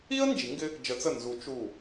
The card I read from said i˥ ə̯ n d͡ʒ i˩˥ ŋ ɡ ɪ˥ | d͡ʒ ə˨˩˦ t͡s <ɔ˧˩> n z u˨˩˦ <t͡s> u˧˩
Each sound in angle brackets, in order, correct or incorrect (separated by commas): incorrect, incorrect